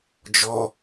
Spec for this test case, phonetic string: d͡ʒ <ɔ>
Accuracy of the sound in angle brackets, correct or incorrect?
correct